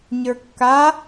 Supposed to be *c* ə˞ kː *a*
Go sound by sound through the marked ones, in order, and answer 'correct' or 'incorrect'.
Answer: incorrect: ɲ, correct

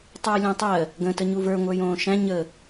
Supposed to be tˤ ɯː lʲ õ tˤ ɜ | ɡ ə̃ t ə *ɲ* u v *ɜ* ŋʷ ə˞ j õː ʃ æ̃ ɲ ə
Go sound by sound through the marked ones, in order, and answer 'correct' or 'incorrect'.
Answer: correct, incorrect: ə˞

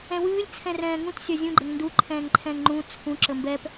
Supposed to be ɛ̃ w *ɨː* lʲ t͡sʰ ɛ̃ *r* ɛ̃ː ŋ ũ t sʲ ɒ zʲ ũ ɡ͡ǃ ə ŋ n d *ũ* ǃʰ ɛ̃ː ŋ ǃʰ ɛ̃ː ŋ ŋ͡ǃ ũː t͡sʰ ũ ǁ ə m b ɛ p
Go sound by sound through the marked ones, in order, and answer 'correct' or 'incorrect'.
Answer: correct, correct, incorrect: u

